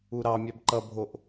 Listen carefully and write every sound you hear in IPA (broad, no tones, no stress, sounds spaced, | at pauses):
u ɾ ɑ mʲ a b ǃ ʌ bʱ o ʔ